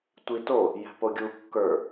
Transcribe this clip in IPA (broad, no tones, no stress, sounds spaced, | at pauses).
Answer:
tʷ i t o | j ɛ̤ p o ɡʲ u kː ə˞